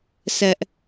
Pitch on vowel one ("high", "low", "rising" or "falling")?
high